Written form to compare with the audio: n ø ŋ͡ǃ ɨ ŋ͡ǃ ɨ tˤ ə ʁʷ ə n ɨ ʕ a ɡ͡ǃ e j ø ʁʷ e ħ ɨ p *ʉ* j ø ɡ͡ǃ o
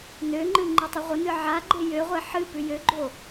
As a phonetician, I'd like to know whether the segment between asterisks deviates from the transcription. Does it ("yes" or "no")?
no